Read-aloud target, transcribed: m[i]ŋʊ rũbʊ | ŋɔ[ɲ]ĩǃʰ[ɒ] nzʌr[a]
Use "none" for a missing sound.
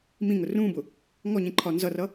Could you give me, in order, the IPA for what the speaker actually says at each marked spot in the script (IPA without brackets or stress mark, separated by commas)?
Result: ĩ, ɲ, ɒ, ʌ